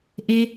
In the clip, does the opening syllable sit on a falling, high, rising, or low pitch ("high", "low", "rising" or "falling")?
low